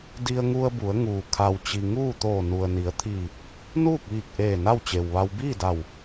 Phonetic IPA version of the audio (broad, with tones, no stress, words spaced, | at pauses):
di˧ə̯ŋu˧ə̯ bu˩˧ə̯ŋuː˩ kʰa˩wt͡ɕi˩ ŋuː˥˨t̪oː˧˩ nu˩ə̯ni˩˧ə̯t̪ʰiː˧˩ | nuː˥˨k̚ʋiː˧˩k̚ʔeː˧˩ na˥˨wt͡ɕe˩wʋa˧w biː˥˨da˧˩w